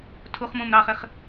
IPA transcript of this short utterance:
tʰ u χ m ũ m ɾ ɑ χ ɪ χ

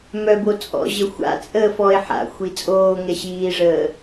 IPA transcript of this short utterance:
m œ b o t͡sʼ ɔ̰ ʑ ə xʷ a̰ t͡sʼ əː f ɔ e̯ ħ a̰ xʷ i t͡sʼ oː ŋ ɛ ɕ iː ʐ əː

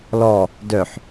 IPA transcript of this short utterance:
l ɔ | d œ ħ

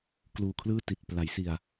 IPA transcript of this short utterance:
k l uː˨˩ kʰ l ɯː˥˩ t i˨˩ t̚ p l a˩˦ j s i˨˩ a̯

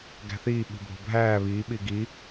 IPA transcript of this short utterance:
ɡ æ̤ θ iː ɓ i̤ bʱ o̤ bʱ æː β iː ɓ i ɡ i

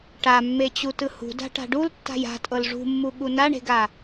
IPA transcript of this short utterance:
ʈ a mː e t͡ɕ u t ɯ h ṳ d a̤ ʈ a̤ ɖ u l tː a̤ j a̤ tʼ ɤ l ʐ ṳ mː u ɠ u n a ɳ e̤ ɡ a

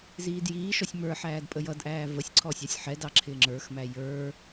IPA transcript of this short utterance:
z iː d j iː ʃ ɔ sʲ m ə˞ ħ æː d pʼ ə j ʌ d ʔ æː v ə sʲ ǀʰ ɔ sʲ ɑ sʲ ħ ɛ d ɑ ǁʰ ɪː ŋ͡ǁ ə˞ x m æ j ə˞

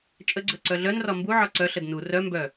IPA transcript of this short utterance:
t͡ʃʼ ə ɡ͡ǀ ɵ ǀ œ ɮ œ n r ɒ m b u ʕ ɒ ǀ œ ɬ ə d n u r œ m b œ

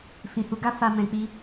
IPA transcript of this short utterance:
f ĩ˨ h u˨˦ ɡ a˦ f a˦ m ɛ̃˧ k͡p i˧

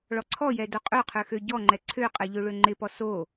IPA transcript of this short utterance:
ɭ ɔ ǀʰ ɔ j ɛ d o qʼ ø qʰ ø x ø ɟ ɔ ŋ͡ǃ ɛ ǀʰ ø qʼ ɛ ʎ ø ɭ ø ŋ͡ǃ ɪ p ɔ s o

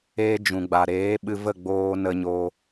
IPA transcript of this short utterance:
eː˦ d͡ʒ ũ˨ ɡ͡b a˨ ɾ eː˨˦ ɓ ɨ˧ v ə˦˨ ɡ͡b oː˦ n ə˦ ɲ o˦

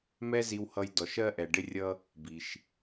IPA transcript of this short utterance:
m ɛ˥ z i˧ w h ʌ˧ j d ɔ˩ ʃ ɜ˧ ʔ ɛ˩ ɖ ɪ˧ rʲ ʌ˧ | b i˩ ʃ

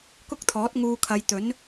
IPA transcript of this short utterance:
k ʊ˥ k̚ t̪ʰ ɔː˨˥ t̚ ŋ uː˧ kʰ ɐ˨˧ j t̪ ɵ˨˥ n

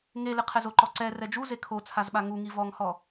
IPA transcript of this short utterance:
ŋ e l ɪ qʰ ɛ z o ǃ ɔ ǀ ɛ r ɛ d͡ʒ u z e kʰ o t͡sʰ a z ɓ a ŋ u ŋ i v ɔ ŋ h ɔ

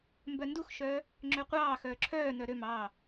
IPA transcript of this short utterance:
m b œ n d u x ʃ œː | ŋ͡ǁ ø qʷ ɑː x œː ǁʰ œː n œ ɾ ø m ɑː

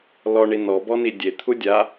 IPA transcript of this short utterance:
l ɔ ɳ i n ɔ b ɔ n i dʲ e t̪ʰ u dʲ a

